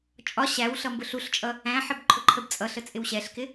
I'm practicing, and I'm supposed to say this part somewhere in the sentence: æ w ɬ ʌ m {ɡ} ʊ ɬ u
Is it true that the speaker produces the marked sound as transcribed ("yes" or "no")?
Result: no